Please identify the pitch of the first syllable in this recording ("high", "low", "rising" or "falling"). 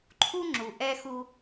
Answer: high